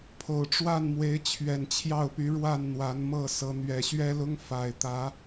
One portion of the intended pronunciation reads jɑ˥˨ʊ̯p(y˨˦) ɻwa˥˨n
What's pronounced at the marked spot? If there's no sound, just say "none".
y˨˦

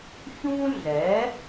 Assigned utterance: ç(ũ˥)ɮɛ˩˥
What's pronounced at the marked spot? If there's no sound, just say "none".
ũ˥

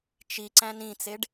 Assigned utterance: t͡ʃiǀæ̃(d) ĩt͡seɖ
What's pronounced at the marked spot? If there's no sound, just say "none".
n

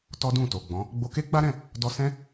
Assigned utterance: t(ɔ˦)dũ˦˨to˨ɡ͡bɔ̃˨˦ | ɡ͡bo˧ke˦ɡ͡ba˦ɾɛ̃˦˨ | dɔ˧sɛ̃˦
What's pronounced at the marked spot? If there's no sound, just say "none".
ɔ˦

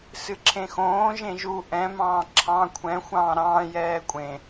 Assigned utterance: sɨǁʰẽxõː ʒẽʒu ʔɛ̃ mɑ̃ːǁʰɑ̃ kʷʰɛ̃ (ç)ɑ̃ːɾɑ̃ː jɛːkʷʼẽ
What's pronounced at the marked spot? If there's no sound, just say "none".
xʷ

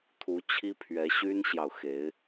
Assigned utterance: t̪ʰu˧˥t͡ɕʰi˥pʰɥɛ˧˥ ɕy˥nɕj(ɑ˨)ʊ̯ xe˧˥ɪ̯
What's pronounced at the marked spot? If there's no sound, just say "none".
ɑ˨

